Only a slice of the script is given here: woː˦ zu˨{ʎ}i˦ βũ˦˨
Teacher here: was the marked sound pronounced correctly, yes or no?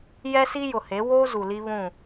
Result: no